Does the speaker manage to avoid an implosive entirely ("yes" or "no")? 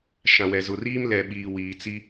no